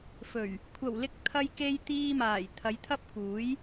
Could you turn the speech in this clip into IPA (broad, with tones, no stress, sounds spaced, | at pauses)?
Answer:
f ɵ˨˩ ɥ | kʷʰ ɐ˨˩ w l ɪ˧ k̚ t̪ʰ ɐ˧ j k e˧ j t̪ iː˧ m aː˨˩ j t̪ʰ ɐ˨˧ j t̪ʰ ɐ˥ p̚ k uː˨˥ j